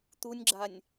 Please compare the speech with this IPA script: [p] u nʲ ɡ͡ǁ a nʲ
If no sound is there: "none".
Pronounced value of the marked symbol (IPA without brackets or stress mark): t̪